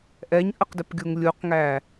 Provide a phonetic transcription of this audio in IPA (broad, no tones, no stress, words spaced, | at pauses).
ʔɛɲʔəqdɪpɡʲuŋ lʲuqŋæ